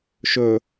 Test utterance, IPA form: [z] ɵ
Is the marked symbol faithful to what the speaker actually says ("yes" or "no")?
no